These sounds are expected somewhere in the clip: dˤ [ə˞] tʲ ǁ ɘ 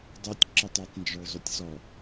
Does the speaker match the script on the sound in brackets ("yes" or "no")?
yes